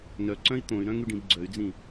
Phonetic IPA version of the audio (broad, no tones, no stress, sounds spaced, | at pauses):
n œ ǀ œ̃ i̯ t̪ õ y̯ ɾ œ̃ ŋ y ɖ ĩ b ɡ͡ǀ œ y̯ d͡z ĩ